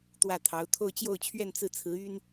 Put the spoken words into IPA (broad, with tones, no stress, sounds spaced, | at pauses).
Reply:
t̪ w ä˥˩ t̪ʰ ɑ˧˥ ʊ̯ t̪ʰ o˥˧ ʊ̯ t͡ɕ j o˥˧ ʊ̯ t͡ɕʰ ɥ ɛ˥˧ n t͡s ɹ̩˥˩ t͡sʰ ɹ̩˧˥ y˥ n